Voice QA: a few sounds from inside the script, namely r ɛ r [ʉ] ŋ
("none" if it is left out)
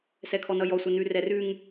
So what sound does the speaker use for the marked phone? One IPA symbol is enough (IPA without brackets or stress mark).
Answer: ʉ